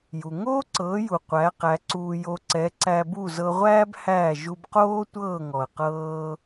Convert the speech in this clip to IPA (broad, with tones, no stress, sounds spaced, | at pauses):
j u˩ ŋ oː˥ ǀ ɤː˩˥ j u˩ qʷ æ˩˥ q æ˩˥ ǀ uː˧ j o˧ ǀ ɛ˩˥ ǀ æ˧ b u˥˩ z ɤ˧ ʁʷ æː˥ b h æː˥˩ ʒ u˧ b q oː˥ tʷ ɤː˥˩ ŋ ɔ˩ ə̯ q ɤː˧